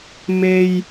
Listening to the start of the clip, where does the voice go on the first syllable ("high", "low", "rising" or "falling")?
low